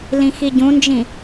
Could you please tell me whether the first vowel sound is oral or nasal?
nasal